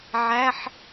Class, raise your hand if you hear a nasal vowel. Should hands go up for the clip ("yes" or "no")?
no